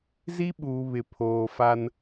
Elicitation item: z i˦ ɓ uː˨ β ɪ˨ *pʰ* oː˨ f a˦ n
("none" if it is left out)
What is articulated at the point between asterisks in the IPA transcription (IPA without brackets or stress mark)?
pʰ